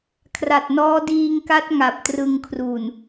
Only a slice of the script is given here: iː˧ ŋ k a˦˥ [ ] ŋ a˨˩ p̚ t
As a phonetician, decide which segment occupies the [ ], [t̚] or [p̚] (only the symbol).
t̚